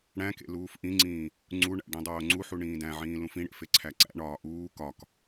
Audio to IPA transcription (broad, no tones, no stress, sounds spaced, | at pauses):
ɽ æ̃ k ḛ l uː f ʔ ĩ ŋ͡ǀ ĩː | ŋ͡ǀ u ɳ æ̰ ɖ ĩ dˤ oː ŋ͡ǀ u ħ u ɳ ĩː d æ̃ ʕ ĩː l ũ f ĩ ɽ ḛ f e ǀʰ æ ǀ æ̰ ɳ ɒː ʔ uː k ɒ k